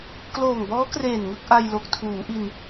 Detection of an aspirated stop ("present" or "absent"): present